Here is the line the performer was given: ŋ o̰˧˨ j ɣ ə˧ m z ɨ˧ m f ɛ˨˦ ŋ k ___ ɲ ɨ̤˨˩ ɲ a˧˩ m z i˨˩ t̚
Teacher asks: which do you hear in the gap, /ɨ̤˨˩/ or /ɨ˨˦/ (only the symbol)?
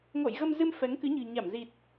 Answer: ɨ˨˦